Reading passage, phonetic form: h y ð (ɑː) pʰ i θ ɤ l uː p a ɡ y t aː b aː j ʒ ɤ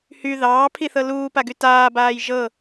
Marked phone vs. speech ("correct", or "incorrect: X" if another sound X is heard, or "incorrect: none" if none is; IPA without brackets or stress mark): correct